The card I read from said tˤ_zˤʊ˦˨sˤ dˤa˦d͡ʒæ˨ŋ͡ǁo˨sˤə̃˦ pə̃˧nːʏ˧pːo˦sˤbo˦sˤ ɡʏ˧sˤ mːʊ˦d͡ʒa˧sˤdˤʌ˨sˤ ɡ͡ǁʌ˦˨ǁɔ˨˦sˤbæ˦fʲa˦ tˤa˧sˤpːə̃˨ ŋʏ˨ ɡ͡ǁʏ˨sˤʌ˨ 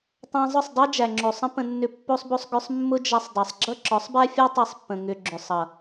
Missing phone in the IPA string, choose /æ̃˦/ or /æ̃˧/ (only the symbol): æ̃˧